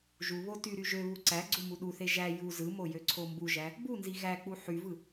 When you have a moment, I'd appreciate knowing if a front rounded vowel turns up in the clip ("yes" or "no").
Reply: yes